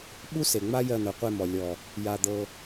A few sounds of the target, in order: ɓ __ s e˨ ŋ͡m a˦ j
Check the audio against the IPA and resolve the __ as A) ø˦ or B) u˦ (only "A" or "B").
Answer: B